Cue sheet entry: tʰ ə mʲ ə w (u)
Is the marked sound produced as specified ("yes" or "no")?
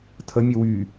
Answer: no